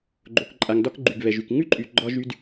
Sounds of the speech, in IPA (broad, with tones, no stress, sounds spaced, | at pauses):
ɡ͡ǃ o˩ k ǃʼ a˩ ŋ d ɒ˧ k ɡ͡ǃ y˩ ɡ β ɛ˩ ʒ y˩ k ŋ ʉ˥ ǃʼ y˩ ɡ͡ǃ ɒ˧ ʒ y˧ d